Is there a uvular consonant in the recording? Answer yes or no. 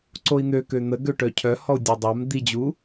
no